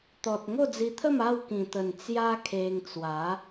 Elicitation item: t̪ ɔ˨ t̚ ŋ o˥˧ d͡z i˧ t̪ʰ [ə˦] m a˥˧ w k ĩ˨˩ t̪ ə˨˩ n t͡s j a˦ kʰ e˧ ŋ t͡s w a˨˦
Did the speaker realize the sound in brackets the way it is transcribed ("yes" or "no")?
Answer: no